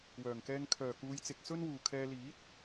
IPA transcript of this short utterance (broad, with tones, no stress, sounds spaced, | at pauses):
w œː˨˩ ŋ k ɛː˧ ŋ kʰ œː˨˩ k uː˨˧ j t͡s ɪ˨ k̚ s ɵ˥ n w uː˨ kʰ ɛː˧ l iː˨˥ t̚